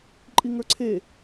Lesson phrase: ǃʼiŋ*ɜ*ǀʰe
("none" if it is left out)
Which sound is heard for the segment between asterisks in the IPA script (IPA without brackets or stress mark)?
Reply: ə˞